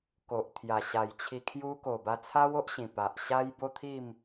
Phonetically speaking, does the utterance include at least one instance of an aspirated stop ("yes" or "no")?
yes